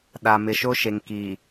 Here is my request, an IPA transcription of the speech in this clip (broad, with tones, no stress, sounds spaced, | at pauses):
ɗ a˨ m ɪ˨ ʃ o˦ ʃ e˨ ŋ k i˨